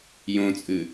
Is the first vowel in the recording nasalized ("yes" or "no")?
yes